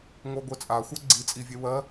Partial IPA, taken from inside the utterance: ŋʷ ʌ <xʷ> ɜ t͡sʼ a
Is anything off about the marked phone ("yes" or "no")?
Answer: yes